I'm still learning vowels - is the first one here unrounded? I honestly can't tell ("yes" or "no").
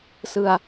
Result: yes